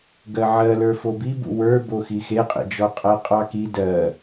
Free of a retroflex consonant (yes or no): yes